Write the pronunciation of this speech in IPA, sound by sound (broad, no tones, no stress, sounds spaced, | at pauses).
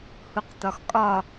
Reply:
h u q t̪ ɒ x kʼ ɒ